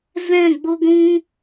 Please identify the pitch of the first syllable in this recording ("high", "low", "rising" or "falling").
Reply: falling